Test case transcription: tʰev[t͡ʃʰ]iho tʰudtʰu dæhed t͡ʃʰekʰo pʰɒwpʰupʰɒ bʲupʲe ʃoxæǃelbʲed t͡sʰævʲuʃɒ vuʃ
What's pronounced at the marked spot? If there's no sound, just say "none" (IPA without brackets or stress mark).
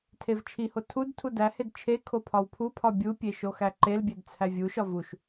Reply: t͡ʃʰ